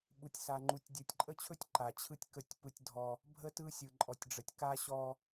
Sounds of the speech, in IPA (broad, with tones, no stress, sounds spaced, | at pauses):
ɓ u˨ tʲ s a˨ ŋ͡ǃ u˨ tʲ dʲ ɯ˨ tʲ ǃʼ ə˦ t͡ɕʰ ɵ˦ tʲ ǃ a˨ t͡ɕʰ ɯ˦ tʲ k ə˦˨ tʲ p ɯ˦ tʲ dʱ ɔ˦ | bʱ ə˦ t ɯ˦ sʲ ɯ˨ ǃʼ ɔ˨ tʲ ɖ͡ʐ ə˨ tʲ k a˦ ɕ ɔ˦